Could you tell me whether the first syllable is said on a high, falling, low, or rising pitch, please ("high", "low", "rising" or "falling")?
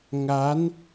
rising